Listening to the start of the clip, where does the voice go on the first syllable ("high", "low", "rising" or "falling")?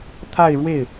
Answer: falling